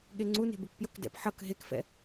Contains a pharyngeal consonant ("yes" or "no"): yes